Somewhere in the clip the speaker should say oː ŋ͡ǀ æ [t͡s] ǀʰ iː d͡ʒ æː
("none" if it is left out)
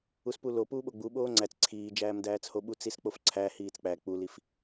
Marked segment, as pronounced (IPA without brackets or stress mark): t͡s